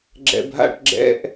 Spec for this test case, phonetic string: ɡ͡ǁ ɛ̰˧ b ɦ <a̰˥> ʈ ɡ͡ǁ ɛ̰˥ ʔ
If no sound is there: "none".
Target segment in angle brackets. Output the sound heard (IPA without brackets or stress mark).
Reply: a̰˥